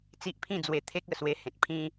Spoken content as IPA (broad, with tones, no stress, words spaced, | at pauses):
t͡si˦ʔpʰĩ˥˧d͡zwe˧t̪ʰe˦k̚ ə˨˩swe˧hẽ˨t̚ pʰĩ˦